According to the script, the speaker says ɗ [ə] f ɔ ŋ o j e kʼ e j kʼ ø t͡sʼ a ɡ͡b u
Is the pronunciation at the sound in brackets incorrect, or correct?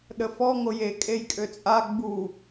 correct